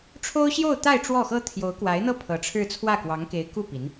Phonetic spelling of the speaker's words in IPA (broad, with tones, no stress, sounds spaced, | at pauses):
ʈ͡ʂʰ o˥ ʊ̯ ɕ j o˥˧ ʊ̯ t̪ a˥˧ ɪ̯ ʈ͡ʂ w ɔ˥˩ x ɤ˥ t̪ʰ j o˧˥ ʊ̯ k w a˧˥ ɪ̯ n̪ ɤ˥˩ pʰ ɤ˧˥ ʈ͡ʂʰ ɻ̩˥˧ t͡sʰ w ä˥˩ k w ɑ˧˥ ŋ k e˧˥ ɪ̯ k u˥˩ p i˧˥ n